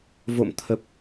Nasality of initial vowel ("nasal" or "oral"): oral